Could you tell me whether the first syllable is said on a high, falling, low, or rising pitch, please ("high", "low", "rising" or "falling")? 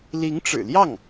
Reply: rising